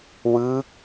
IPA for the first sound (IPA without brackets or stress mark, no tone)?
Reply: w